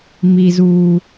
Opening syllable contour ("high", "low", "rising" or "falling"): high